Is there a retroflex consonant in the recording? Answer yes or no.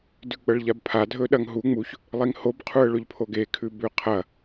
yes